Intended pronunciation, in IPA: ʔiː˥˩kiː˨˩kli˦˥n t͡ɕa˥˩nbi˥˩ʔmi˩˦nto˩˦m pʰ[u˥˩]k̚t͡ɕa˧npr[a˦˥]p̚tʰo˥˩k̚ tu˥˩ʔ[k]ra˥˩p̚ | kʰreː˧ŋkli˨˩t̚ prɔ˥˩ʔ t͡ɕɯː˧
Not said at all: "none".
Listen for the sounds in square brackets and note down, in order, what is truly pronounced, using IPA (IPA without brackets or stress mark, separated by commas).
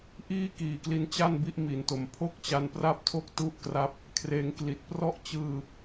o˥˩, a˥˩, k